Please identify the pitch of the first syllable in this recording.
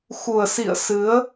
low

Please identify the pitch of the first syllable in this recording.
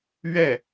falling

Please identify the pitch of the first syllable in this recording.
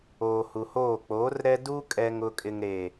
low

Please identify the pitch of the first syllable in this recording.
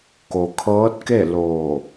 low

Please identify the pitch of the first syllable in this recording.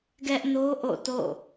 high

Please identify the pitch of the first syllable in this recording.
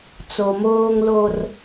low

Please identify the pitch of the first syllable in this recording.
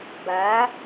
rising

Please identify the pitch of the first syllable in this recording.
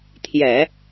low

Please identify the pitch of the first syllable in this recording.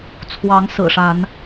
rising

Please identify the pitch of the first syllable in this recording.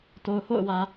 low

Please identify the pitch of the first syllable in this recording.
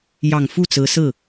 low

